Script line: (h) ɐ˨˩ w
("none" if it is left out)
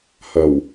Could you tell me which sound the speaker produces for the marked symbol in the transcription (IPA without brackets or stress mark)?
h